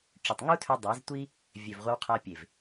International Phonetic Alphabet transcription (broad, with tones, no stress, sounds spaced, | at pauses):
ʈ͡ʂ ʏ˨ tˤ ŋ u˦ tʰ ø˧ dˤ a˨˦ z tʷ i˦ | vʲ ø˨ v ʁʷ ɐ˧ w qʰ a˧ pʲ e˨ v